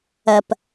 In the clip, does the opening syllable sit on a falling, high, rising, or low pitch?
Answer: low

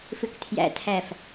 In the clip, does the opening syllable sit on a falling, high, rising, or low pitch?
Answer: low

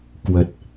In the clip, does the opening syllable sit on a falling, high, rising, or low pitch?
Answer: low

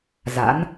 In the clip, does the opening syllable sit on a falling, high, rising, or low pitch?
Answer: rising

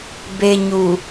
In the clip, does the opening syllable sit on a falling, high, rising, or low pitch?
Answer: low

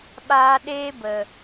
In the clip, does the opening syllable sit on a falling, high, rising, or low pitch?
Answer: high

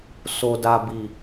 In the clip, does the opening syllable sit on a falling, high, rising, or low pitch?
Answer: low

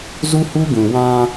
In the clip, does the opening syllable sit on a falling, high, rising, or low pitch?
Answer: high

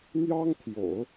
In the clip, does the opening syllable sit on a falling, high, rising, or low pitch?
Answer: high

